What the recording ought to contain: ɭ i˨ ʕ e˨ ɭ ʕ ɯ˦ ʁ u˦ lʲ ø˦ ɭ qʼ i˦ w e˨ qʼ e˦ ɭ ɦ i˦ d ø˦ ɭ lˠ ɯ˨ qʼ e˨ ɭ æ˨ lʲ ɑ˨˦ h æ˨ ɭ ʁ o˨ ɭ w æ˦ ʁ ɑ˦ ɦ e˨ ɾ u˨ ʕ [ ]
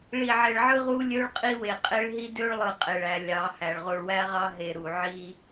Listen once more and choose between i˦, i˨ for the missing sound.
i˦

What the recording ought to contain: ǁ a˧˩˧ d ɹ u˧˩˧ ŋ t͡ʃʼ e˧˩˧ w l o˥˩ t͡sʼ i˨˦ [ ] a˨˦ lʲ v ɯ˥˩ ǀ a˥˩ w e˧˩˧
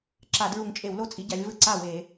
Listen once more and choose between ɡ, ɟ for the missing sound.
ɟ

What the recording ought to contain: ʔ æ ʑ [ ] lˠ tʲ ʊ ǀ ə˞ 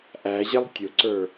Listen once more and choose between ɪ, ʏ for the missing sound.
ɪ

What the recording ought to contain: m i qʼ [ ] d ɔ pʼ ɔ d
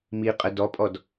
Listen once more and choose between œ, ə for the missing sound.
ə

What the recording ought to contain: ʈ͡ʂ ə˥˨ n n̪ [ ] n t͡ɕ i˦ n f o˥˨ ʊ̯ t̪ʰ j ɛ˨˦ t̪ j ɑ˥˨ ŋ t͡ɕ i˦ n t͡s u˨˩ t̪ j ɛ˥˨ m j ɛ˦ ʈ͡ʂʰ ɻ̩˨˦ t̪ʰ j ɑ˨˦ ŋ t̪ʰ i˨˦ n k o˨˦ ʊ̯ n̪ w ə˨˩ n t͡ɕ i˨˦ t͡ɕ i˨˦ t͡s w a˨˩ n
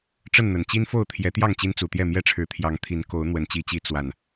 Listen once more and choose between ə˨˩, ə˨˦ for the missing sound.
ə˨˩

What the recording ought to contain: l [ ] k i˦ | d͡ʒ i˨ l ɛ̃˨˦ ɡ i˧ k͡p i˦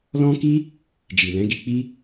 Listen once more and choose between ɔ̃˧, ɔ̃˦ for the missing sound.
ɔ̃˦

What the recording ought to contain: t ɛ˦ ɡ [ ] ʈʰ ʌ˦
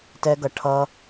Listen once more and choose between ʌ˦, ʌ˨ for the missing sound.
ʌ˨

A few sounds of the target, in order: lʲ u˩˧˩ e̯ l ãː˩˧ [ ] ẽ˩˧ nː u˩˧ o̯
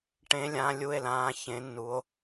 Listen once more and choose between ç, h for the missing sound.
ç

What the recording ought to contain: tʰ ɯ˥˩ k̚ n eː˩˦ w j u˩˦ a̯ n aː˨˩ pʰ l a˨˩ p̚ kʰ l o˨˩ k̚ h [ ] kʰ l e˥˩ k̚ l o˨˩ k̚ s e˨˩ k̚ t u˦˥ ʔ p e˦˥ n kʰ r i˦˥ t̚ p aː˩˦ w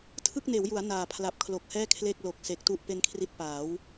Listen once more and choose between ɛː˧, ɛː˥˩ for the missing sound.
ɛː˥˩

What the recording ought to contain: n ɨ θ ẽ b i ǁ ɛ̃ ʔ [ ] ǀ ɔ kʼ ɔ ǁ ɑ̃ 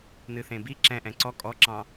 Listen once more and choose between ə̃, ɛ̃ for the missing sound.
ɛ̃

